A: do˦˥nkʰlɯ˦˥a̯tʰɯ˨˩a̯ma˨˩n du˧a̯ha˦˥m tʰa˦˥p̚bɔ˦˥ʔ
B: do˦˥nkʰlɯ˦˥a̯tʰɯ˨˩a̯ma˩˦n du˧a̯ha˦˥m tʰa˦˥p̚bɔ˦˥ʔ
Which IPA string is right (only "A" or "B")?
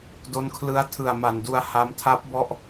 A